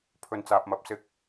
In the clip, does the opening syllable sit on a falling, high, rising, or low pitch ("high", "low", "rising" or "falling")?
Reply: low